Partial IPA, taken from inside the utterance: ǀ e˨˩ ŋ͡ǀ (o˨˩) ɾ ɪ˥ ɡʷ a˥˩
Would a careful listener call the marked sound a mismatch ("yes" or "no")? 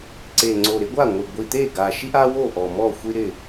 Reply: no